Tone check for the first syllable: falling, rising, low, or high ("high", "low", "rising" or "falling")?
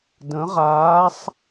rising